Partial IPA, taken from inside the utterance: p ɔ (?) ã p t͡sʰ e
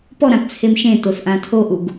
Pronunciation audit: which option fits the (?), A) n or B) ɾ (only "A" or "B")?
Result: B